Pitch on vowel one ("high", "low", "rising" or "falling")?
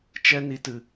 high